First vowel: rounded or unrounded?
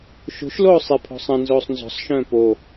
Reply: rounded